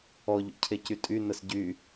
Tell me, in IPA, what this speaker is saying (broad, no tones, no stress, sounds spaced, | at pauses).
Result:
ɔ ʎ ṵ cʰ e c y tʼ y n ə s ɟ y